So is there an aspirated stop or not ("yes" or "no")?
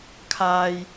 yes